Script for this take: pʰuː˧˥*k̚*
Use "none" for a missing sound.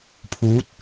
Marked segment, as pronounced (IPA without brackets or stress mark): t̚